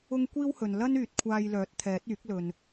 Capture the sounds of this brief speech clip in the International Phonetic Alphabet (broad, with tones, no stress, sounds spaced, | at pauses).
ʊ˥ ŋ kʷ iː˥ w h ɵ˨ n l ɐ˥ n yː˨ t̚ kʷʰ aː˧ j l œː˨˥ t̚ t̪ʰ ɛː˨˥ t̚ yː˨˥ k̚ l ɵ˨ n